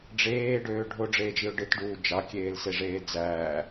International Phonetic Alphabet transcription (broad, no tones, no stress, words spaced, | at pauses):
ɖ͡ʐeːɖøː ɖʱoɖ͡ʐeːd͡ʒiʊ̯ ɖɯtɖuː d͡ʒɑkʲeːlseʐeː d͡zæː